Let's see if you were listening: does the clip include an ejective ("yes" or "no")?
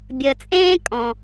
yes